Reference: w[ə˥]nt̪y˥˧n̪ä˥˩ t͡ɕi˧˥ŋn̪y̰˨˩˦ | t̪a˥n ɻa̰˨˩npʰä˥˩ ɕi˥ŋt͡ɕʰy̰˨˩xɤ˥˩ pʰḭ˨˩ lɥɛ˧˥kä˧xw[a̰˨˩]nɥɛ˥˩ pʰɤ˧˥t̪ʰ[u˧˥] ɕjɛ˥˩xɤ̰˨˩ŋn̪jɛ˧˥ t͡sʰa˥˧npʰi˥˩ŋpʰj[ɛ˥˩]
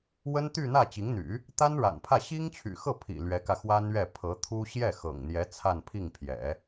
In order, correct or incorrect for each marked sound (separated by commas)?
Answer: correct, incorrect, incorrect, incorrect